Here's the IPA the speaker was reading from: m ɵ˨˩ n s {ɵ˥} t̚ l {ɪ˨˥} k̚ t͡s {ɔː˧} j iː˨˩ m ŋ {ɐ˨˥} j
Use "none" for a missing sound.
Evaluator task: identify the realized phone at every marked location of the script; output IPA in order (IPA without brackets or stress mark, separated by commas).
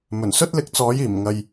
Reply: ɵ˥, ɪ˨˥, ɔː˨˥, ɐ˨